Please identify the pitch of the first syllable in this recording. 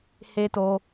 high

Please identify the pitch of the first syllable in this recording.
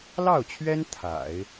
falling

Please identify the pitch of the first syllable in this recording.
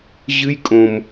high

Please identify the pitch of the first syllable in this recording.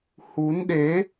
rising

